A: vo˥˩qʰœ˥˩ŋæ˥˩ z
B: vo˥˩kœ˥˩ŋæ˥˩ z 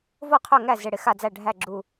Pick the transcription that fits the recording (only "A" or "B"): A